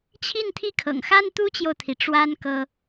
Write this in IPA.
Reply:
t͡ɕʰ i˥˩ n t̪ʰ i˥ kʰ ɤ̰˨˩ ŋ x a˥ n t̪ u˥ t͡ɕ j o˨ ʊ̯ t̪ʰ i˩ ʈ͡ʂ w a˥ n k ɤ˥

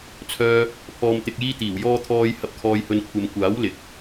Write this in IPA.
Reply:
t͡sʰ œː˧ | pʰ ɔː˨ m t̪ ɪ˨ k̚ j iː˧ t̪ iː˨˩ w j ɔː˧ t̪ʰ ɔː˧ j h ɐ˧ p̚ kʰ ɔː˧ j h ɵ˧ n kʷʰ ɐ˧ m kʷ aː˨˥ w l ɪ˨ k̚

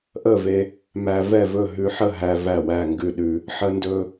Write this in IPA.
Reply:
ʔ ə˥˨ v e˧ | m æ˧ v ɛ˥˨ v ɵ˥˨ ɦ ʉ˧ ħ ə˥˨ ɦ æ˧ v æ˥˨ w æ˥˨ ŋ ɡ ʉ˥˨ ɗ ʉ˧ | ħ ə˧ n d ɵ˧

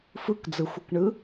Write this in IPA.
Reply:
f ɯ k d͡z ɯ xʷ ɯ k ɳ ɯ

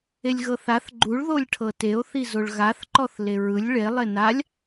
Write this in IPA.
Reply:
e lʲ ɣ ɤ θ a θ ɡ͡ǃ u ɭ ð o lʲ ʈʰ ɤ t e o̯ θ i z o ɭ ɣ a θ ǃ ɔ θ l e ɹ ɯ lʲ ɭ e lˠ e n a lʲ

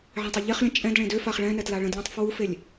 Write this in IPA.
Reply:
ʕ ɛ̃ tˤ œ ʎ e χ lʲ ə̃ t͡ʃʼ ɛ̃ d ɭ ẽ d ø f a χ ɭ ɛ̃ n ɛ t l a ɭ ə̃ d lʲ ẽ tˤ f w u f e lʲ

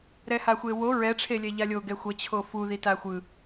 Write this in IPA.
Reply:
ɾ ɛ h a xʷ e w o ɹ ɛ ʈ͡ʂʰ e lʲ ɛ ʎ a lʲ o ɡ ɛ xʷ ʌ t͡ɕʰ o f u ð i t a xʷ ɯ

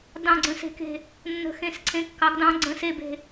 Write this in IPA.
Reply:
d ɑ̃˧˩ ɡ͡ǀ ə̃˨˦ s e̤˨˦ k e̤˧˩ | nː ə̤˨˦ x ẽ˨˦ s ǀʰ ẽ˨˦ kː ɑ˨˦ ɡ d ɑ̃˨˦ ɡ͡ǀ ə̃˨˦ s e˧˩ b e̤˧˩

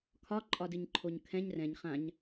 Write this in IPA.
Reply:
kʰ ɒ ǃʼ ɒ d ɨ ɲ ǃʰ o ɲ kʰ ɛ̃ ɲ r ɛ̃ ɲ χ ã ɲ

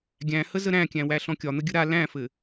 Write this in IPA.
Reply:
ɡʲ æ̃ h ə z ə ɾ æ̃ kʲ æ̃ w æ ɬ ɔ̃ kʲ ɒ n̪ ə ɡʲ ə ɾ a l æ̃ f ɘ

